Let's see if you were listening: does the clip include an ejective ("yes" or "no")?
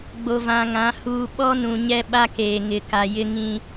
no